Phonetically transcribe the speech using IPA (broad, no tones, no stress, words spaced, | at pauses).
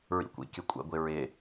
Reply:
ɹḭkʷḭkʲə kʷʼɛ̰ɡʷɪɹɪ